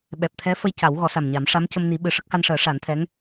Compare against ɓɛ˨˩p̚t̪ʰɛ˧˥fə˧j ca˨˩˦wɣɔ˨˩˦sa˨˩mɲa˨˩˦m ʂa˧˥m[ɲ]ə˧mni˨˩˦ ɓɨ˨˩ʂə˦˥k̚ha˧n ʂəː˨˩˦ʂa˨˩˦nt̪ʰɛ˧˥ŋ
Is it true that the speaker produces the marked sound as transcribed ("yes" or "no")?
no